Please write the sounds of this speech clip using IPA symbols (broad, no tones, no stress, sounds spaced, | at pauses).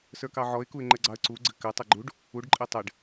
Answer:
s ə˞ k ɑ ʕ ɔ ɪ̯ k u ɪ̯ ŋ͡ǃ ɘ ɡ͡ǀ ɑ ə̯ ǀ u ɡ͡ǀ ɘ k ɘ tˤ ɘ ɡ͡ǃ u ɖ | u ɖ ǃʼ e tˤ ɘ ɖ